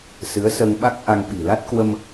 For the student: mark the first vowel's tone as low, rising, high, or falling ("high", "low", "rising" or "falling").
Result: rising